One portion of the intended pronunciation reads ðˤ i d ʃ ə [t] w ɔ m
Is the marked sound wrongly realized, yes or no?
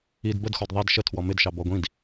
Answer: yes